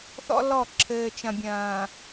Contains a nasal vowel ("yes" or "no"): yes